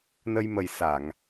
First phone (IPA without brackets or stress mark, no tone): n